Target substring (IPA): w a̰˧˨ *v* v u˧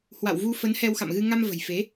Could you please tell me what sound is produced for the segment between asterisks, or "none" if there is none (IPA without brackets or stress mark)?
w